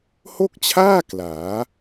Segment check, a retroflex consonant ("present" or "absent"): absent